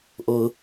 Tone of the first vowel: low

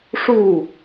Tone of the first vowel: falling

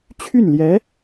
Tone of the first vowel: falling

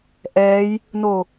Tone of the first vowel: rising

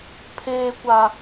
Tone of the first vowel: high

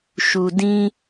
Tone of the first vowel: low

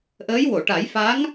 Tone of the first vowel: rising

